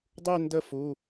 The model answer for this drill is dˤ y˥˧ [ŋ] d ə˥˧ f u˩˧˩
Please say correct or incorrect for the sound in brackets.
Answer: incorrect: n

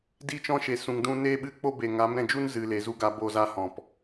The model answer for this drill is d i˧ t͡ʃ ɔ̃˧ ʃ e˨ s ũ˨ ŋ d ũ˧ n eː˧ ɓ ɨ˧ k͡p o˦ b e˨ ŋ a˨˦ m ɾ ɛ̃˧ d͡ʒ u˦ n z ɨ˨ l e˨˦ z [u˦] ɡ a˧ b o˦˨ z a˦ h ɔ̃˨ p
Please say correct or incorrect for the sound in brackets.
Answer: correct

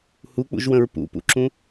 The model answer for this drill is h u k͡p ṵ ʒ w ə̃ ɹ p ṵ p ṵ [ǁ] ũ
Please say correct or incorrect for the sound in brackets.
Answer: correct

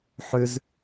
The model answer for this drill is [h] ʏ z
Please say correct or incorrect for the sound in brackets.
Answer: incorrect: ħ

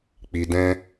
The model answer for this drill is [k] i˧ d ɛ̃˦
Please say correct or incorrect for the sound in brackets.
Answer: incorrect: k͡p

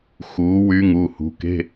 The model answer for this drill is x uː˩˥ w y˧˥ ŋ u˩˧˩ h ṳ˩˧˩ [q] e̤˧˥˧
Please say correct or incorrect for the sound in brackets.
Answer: incorrect: k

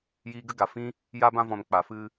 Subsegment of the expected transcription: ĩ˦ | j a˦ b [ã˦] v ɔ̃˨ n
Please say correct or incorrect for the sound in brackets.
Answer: incorrect: ã˧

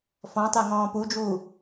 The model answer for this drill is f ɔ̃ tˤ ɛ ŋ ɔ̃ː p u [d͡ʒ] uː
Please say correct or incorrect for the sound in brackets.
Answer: correct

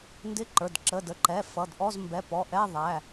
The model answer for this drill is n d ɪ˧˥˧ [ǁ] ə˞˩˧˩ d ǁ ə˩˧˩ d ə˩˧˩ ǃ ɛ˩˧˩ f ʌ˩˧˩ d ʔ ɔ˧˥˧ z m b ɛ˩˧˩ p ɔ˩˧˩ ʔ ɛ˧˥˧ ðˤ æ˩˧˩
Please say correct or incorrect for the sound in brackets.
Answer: incorrect: ǃ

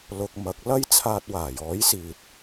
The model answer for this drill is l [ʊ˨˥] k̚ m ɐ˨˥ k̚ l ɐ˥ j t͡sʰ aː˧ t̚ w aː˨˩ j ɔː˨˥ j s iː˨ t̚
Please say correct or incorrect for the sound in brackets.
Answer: incorrect: ʊ˧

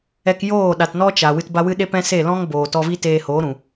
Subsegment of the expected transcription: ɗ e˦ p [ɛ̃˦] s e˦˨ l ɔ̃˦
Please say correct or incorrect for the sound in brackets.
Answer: correct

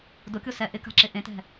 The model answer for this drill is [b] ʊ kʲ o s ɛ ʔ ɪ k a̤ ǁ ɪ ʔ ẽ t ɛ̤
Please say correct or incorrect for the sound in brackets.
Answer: incorrect: d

